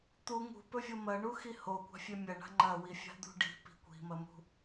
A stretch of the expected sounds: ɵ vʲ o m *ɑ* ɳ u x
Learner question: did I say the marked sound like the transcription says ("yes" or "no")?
no